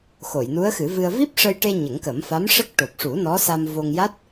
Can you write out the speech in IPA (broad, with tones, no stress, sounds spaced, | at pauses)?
x o˨˩˨ j n u˧˥ ə̯ x ɨ˨˩˦ v ɨ˧ ə̯ v i˦˥ p̚ ʂ ə˧ j ʈ e˧ ɲ ə˨˩˦ ŋ k ə˨˩˦ m f a˧˥ m ʂ ə˦˥ k̚ ʈ o˨˩ p̚ ʂ u˨˩˦ n ɔ˧˥ s a˧ m v o˧ ŋ j a˦˥ t̚